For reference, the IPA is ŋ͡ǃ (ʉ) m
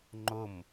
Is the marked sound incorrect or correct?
incorrect